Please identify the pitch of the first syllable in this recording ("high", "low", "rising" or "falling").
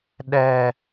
low